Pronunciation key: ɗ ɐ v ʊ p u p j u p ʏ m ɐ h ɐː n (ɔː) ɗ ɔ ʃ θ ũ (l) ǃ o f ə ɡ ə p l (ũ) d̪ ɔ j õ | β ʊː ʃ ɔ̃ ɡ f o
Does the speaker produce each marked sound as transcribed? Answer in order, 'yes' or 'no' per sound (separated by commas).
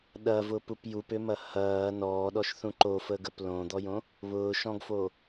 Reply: yes, no, no